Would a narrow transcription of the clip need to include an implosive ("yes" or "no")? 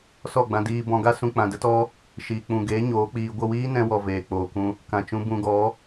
no